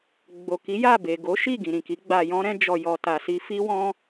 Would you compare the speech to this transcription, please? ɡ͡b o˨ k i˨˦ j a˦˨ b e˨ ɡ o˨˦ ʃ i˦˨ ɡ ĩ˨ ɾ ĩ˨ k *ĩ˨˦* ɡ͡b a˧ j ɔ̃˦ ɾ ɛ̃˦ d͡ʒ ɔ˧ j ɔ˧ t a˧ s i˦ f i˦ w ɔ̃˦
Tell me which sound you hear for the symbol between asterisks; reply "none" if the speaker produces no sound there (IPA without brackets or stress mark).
i˨˦